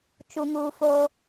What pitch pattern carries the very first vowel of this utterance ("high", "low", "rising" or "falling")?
high